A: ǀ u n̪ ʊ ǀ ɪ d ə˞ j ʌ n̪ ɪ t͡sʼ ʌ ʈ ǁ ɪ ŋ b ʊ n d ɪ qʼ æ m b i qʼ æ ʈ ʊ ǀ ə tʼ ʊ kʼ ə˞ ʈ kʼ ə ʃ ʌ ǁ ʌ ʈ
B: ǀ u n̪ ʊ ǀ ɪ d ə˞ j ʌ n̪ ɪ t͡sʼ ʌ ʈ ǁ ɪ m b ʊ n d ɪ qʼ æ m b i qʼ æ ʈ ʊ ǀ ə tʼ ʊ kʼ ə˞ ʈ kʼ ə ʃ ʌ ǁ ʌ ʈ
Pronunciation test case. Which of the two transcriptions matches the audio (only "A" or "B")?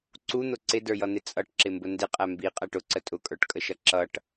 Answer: B